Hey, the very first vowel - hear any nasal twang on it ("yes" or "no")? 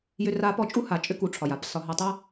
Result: no